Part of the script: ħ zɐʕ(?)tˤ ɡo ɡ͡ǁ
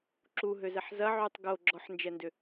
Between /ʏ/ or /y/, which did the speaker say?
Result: y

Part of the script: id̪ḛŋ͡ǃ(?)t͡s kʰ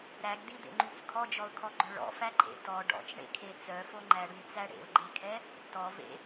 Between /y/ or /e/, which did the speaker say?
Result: y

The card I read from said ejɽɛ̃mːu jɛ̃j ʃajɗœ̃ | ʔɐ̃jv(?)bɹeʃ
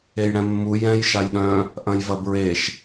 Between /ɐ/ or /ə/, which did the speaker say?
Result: ɐ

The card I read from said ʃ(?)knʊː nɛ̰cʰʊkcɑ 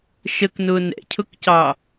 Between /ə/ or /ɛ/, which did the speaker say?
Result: ə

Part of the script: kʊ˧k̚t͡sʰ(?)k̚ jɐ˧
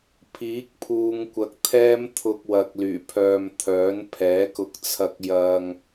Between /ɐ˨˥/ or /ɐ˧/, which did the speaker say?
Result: ɐ˧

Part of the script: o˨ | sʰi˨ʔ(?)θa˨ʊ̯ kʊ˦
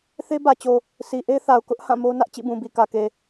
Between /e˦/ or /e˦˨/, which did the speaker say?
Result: e˦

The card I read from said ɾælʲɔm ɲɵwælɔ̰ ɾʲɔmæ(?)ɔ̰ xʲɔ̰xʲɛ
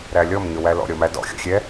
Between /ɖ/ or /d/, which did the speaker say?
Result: d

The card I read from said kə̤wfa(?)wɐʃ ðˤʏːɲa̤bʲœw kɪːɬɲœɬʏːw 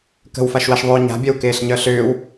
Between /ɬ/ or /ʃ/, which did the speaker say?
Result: ʃ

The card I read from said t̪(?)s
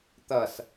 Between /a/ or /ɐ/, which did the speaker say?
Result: ɐ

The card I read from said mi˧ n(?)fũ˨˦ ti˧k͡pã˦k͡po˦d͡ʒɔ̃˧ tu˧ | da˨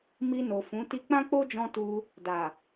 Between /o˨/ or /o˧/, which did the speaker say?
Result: o˨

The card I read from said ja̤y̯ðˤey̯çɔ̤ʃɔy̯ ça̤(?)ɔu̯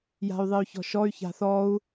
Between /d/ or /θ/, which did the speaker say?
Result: θ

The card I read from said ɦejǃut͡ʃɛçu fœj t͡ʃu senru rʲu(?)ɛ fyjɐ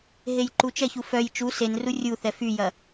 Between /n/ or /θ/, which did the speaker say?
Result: θ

